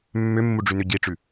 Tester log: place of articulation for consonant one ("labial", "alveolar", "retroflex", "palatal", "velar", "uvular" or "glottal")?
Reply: labial